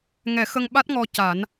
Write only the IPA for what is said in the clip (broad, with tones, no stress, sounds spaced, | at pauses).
ŋ ɛ˨˩˦ x ə˧ ŋ ɓ a˦˥ t̚ ŋ ɔ˧ c a˨˩˦ n